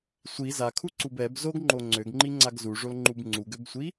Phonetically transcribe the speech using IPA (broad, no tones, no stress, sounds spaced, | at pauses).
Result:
sʷ i z a kʰ u ǀ u b ɛ b z o ɡ ŋ͡ǃ o ŋ͡ǀ ø ɡ ŋ͡ǃ i ŋ͡ǀ a ɡ z u ʐ o l ŋ͡ǃ u b ŋ͡ǀ u ɡ ø b sʷ i